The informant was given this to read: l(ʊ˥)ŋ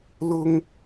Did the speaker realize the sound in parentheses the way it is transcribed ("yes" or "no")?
no